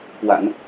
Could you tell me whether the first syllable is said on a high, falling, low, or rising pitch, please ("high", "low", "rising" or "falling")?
low